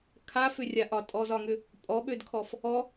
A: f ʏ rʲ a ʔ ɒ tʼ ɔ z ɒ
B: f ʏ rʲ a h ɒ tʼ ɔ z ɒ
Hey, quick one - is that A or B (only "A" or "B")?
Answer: A